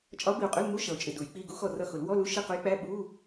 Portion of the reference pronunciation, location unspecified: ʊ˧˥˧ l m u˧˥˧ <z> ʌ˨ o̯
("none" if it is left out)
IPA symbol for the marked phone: ʃ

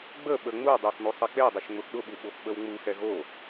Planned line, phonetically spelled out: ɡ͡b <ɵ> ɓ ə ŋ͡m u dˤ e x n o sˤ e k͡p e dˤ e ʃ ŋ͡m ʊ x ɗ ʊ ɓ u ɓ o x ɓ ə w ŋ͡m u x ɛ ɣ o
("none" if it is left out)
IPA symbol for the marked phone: ə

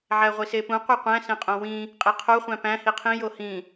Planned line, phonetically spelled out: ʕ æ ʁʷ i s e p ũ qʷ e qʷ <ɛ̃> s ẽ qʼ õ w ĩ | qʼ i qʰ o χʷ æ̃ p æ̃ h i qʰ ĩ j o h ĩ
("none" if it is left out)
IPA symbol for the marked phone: æ̃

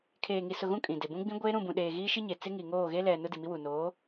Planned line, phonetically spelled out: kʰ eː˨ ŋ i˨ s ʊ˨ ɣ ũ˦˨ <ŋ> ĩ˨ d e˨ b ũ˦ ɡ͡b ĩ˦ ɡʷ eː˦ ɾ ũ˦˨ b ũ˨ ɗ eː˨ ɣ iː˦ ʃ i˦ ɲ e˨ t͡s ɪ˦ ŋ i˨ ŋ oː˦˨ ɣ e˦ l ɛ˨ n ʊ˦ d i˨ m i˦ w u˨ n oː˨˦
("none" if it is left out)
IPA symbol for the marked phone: kʼ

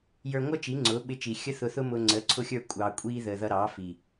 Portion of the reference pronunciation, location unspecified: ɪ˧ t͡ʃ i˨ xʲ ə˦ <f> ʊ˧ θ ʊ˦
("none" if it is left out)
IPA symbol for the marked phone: θ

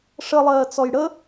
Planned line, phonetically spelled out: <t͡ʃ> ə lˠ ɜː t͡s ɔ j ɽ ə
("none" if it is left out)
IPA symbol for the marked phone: ʂ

